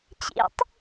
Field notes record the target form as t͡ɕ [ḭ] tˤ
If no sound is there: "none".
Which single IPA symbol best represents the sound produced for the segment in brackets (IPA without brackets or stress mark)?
ḭ